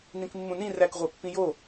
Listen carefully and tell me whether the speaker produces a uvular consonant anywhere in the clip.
yes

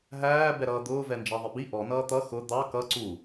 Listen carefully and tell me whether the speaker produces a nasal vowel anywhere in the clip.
no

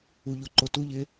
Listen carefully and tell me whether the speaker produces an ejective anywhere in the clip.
no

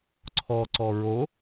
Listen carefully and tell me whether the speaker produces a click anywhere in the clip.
yes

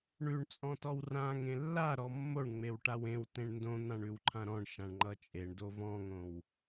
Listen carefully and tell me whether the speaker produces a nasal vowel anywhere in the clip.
yes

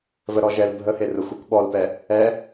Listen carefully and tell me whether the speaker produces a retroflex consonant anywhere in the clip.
no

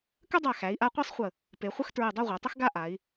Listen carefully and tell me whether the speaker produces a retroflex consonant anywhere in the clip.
no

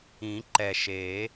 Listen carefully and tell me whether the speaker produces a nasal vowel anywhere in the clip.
yes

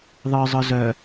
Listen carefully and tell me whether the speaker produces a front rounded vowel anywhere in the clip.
yes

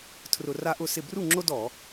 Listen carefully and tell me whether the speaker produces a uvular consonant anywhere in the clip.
no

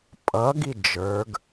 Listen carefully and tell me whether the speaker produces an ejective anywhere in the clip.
yes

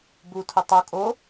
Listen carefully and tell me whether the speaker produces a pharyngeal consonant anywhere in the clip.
no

